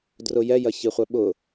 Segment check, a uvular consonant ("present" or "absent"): present